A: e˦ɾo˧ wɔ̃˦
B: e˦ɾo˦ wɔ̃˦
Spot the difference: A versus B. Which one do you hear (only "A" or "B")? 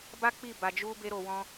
A